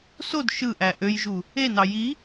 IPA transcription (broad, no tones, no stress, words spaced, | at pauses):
sod ʃɯʔæ ʔøjʒu | enɑ ji